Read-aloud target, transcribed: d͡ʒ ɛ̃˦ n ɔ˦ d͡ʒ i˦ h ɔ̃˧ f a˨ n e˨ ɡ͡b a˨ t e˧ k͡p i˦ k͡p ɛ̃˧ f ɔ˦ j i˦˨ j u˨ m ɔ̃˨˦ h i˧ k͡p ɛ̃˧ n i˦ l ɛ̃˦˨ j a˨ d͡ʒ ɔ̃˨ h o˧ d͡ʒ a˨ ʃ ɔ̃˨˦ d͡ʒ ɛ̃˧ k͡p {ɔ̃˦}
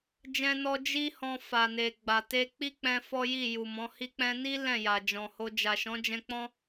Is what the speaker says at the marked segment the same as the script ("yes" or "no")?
yes